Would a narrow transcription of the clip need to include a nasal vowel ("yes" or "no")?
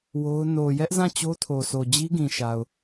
yes